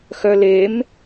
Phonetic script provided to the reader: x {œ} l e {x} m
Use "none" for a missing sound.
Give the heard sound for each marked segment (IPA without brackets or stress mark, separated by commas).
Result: œ, none